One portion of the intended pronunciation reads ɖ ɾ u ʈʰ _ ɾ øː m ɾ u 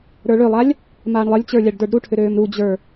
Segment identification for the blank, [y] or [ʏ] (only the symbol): ʏ